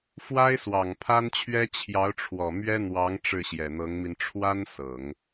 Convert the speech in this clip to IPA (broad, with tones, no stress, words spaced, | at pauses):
fwa˥ɪ̯swɑ˨˩ŋpʰa˥nt͡ɕʰɥɛ˥ t͡ɕʰjɑ˧˥ʊ̯ʈ͡ʂʰwɔ˨˩ mɥɛ˥n̪wɑ˧˥ŋ ʈ͡ʂɻ̩˥˩ɕjɛ˨˩n̪ɤ˧˥ŋmi˧n ʈ͡ʂʰwa˥n sɤ˨˩˦ŋ